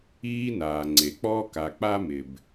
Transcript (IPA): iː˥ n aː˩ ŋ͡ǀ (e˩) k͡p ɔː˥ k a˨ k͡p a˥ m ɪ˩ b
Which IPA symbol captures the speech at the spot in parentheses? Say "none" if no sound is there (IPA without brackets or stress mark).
e˩